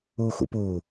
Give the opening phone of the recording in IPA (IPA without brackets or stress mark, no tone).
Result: uː